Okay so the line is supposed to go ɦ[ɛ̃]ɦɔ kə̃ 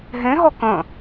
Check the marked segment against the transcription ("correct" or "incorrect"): incorrect